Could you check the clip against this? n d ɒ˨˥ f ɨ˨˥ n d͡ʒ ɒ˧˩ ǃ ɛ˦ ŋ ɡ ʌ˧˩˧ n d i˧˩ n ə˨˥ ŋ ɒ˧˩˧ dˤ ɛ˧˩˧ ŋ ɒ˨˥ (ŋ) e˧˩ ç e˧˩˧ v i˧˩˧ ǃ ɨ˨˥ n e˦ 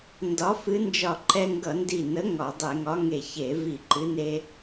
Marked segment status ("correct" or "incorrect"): correct